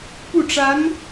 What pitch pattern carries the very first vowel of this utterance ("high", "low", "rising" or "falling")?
falling